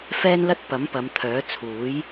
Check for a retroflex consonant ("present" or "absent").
absent